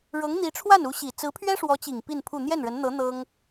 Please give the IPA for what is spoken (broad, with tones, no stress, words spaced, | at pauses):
ɻɤ˧˥ŋ n̪i˧˥ʈ͡ʂʰwa˥˩nu˧˥ ɕi˨˩ t͡sɹ̩˧˥pʰɥɛ˥ʂwɔ˧˥t͡ɕi˨˩ŋ pi˥˧npʰu˥˧ n̪jɛ˥˩nɻə˧˥nn̪ɤ˧˥ n̪ɤ˥ŋ